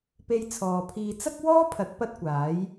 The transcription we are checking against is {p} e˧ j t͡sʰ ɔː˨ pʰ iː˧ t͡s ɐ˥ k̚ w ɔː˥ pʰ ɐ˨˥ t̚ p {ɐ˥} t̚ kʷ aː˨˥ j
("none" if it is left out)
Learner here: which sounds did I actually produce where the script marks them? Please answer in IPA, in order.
p, ɐ˥

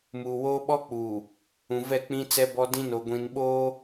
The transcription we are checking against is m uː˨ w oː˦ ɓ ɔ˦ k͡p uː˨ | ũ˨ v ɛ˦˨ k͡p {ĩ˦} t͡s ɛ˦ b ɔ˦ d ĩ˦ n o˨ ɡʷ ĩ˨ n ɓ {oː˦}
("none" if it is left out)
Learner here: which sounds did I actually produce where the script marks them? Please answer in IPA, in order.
ĩ˦, oː˦

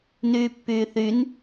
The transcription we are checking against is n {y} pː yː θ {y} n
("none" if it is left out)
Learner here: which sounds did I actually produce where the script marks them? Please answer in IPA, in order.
yː, y

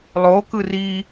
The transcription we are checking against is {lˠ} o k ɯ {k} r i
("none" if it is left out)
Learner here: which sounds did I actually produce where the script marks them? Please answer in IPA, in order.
lˠ, none

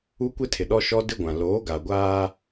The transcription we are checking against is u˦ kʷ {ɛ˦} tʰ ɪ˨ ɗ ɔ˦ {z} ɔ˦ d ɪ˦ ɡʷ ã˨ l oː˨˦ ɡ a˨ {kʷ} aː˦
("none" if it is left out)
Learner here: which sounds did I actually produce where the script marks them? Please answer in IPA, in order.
ɪ˦, ʃ, ɡʷ

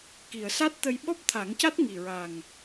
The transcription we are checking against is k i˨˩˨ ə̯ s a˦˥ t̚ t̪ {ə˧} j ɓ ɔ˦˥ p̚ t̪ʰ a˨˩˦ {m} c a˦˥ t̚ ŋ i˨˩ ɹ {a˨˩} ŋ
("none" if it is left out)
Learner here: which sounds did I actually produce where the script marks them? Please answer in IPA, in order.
ə˧, ŋ, a˨˩

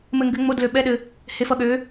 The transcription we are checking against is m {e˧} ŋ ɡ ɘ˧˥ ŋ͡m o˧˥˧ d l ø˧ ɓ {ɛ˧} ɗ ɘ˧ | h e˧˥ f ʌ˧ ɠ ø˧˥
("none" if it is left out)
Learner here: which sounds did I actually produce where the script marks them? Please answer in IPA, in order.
ɘ˧, ɛ˧˥˧

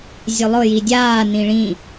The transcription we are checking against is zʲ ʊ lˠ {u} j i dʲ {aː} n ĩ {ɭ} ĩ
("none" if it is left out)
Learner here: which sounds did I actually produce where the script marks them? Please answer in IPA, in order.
ʊ, aː, ɭ

